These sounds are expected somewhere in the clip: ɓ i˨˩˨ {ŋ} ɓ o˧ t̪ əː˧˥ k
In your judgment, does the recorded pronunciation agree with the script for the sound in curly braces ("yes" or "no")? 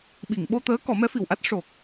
yes